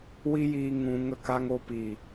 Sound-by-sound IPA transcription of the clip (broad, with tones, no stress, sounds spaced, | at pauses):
w i˦ j iː˧ ŋ ũ˧ ŋ ə˦˨ k a˦ ŋ o˧ p i˨